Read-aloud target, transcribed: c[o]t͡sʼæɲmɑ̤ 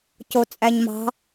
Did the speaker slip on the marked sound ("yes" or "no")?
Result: no